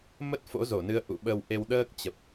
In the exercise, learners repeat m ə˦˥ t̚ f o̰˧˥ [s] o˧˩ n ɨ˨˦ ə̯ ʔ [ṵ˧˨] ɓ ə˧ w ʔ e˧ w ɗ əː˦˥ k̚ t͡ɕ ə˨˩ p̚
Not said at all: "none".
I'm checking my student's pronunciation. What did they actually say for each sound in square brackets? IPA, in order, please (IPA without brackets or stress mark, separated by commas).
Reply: z, ṵ˧˨